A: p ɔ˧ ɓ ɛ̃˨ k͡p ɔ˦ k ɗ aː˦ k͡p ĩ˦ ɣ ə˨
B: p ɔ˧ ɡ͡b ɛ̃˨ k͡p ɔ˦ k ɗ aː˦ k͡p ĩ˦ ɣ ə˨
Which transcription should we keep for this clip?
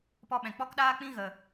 A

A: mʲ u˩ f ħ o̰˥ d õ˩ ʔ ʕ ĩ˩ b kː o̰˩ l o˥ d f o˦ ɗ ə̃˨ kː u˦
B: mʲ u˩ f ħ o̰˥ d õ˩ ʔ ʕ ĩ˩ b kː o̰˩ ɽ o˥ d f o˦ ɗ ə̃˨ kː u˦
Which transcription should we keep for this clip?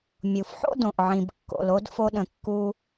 A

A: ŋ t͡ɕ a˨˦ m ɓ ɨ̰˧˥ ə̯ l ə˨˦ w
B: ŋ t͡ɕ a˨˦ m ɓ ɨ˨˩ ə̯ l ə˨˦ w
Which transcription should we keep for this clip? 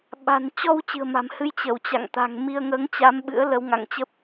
A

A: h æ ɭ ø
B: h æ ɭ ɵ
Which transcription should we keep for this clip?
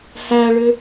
A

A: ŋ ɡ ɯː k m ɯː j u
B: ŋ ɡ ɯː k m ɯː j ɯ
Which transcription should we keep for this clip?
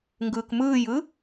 B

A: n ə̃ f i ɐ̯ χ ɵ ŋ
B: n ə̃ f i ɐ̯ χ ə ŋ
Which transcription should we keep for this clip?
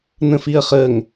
B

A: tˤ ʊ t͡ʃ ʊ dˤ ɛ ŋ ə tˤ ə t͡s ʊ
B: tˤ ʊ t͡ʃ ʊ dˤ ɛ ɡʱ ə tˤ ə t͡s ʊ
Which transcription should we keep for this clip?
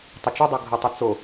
B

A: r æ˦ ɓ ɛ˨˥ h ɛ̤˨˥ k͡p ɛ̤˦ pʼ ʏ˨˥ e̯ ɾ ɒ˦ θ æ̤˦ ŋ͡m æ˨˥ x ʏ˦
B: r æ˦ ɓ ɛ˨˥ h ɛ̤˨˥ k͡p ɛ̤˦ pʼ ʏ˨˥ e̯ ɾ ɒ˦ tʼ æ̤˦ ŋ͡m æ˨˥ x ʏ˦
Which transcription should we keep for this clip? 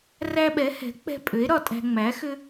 B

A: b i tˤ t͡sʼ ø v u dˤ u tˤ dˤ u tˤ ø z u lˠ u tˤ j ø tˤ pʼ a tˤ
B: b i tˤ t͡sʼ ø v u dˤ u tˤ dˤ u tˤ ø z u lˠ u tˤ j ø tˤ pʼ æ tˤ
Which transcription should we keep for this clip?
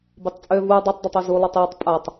A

